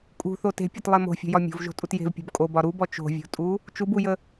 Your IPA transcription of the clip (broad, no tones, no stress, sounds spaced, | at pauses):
kʼ ṳ θ o t e̤ pʲ ɒ t lˠ e m o̤ fʲ o̤ j ɒ mʲ o̤ v ʒ o̤ tʼ u t j e̤ v pʲ o̤ b kʼ o b ɒ ɾ u b ɔ t͡ʃ o̤ vʲ o̤ tʼ u | t͡ʃ u b u j ə